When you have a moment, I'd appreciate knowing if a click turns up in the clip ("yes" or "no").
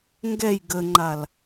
yes